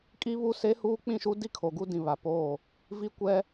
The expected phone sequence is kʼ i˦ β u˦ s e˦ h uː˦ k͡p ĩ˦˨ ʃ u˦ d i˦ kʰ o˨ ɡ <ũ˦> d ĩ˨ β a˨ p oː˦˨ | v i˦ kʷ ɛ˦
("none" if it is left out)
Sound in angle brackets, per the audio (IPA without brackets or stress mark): u˦